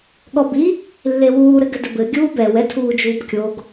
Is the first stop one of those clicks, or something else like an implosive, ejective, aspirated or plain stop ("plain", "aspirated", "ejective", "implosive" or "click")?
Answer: implosive